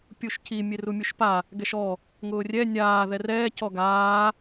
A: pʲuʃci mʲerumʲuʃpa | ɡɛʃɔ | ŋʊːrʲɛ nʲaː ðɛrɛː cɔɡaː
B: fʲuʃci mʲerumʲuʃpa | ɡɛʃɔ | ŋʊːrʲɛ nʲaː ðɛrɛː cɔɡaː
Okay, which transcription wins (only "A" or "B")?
A